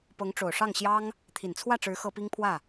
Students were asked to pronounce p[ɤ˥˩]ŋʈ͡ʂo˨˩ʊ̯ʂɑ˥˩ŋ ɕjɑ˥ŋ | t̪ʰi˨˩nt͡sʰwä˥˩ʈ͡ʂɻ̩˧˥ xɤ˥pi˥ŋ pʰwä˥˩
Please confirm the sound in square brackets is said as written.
no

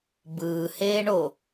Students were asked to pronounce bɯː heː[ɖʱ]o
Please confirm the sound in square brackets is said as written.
no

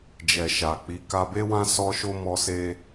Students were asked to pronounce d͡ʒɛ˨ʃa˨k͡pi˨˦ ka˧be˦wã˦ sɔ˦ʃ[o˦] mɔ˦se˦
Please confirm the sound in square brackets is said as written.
yes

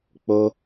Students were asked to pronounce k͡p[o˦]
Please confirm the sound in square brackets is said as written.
yes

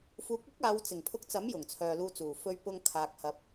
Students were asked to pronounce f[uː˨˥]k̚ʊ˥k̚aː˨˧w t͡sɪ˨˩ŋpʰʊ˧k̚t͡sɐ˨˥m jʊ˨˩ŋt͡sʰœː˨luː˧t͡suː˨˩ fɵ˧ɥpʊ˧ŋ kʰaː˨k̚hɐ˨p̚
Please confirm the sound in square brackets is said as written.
yes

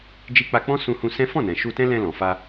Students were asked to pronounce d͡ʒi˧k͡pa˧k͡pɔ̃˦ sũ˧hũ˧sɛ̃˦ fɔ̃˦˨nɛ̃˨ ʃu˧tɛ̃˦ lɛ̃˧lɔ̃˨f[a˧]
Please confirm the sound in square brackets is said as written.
yes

